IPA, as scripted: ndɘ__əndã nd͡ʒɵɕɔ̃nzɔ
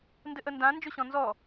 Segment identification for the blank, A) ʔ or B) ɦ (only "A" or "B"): A